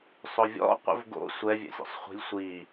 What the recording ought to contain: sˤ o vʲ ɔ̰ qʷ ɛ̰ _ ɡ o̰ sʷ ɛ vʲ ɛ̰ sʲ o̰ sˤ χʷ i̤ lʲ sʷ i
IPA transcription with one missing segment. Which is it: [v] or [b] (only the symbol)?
v